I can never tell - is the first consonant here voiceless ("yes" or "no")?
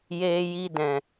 no